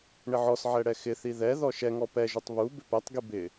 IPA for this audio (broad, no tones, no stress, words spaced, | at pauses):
ɳɪʕɔsʕɛ ɽɛxɪθi ðɛðɔ ʃɛŋɔ pɛʒʊtˤ βu bɪpɛtˤɡi bɪ